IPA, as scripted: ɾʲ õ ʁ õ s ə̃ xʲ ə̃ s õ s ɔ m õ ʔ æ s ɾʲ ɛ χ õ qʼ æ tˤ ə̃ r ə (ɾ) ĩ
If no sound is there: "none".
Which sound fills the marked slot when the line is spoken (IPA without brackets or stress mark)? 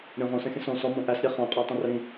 ɾ